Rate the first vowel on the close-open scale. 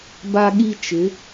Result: open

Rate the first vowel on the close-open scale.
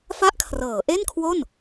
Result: open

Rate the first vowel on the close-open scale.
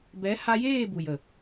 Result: mid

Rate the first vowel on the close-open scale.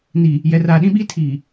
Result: close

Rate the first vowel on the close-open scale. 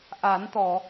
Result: open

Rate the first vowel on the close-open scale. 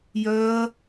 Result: mid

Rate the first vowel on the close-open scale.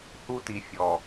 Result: close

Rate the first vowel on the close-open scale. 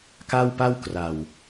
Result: open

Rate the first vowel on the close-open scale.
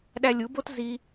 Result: open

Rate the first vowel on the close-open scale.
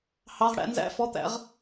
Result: open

